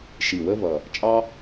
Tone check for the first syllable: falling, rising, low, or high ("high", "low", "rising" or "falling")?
low